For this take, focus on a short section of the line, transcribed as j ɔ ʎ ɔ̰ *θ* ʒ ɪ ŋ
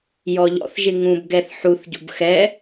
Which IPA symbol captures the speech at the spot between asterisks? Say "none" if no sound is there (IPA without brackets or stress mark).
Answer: θ